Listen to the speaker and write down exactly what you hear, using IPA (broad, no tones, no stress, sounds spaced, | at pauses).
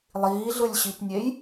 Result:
lˠ iː ɮ ɯ lʲ ɕ i p nʲ e j